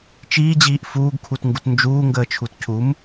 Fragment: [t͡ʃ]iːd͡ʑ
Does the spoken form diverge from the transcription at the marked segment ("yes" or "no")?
no